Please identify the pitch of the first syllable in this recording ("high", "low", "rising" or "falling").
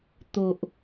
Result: low